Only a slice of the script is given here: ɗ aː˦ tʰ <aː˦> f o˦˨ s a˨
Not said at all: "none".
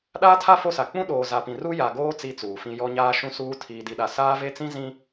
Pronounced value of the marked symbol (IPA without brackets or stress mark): a˦